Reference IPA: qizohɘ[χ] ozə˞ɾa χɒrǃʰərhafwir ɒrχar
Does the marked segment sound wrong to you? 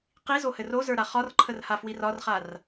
yes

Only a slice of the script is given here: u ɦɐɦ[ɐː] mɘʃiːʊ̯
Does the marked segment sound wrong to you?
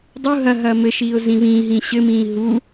no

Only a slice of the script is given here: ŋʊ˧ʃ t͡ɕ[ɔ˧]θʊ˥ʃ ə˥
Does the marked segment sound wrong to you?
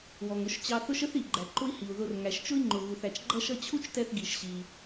yes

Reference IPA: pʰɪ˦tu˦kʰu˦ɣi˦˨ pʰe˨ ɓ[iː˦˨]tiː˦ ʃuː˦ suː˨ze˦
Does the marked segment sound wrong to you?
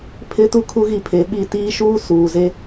yes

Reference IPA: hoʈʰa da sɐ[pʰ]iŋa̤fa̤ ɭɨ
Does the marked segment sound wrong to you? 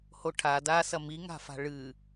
yes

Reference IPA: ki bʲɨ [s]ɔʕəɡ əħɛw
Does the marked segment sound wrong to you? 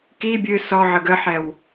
no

